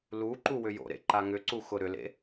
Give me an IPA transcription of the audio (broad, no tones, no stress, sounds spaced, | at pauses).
l u ǃ u w ʏ j o̰ ɾ ḛ ǃ a ŋ ʏ ǀ u x ʊ ɾ ʏ l ḛ